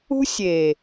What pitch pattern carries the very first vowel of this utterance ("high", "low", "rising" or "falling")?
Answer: high